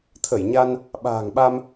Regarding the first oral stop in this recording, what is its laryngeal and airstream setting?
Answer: aspirated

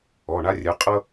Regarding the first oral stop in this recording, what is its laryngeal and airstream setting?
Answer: ejective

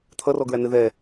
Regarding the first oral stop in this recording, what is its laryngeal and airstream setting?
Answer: aspirated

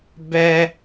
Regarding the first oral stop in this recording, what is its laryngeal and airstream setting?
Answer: plain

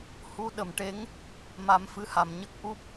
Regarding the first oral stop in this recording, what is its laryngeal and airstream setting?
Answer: implosive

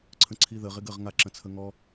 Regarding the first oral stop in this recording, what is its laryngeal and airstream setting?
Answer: click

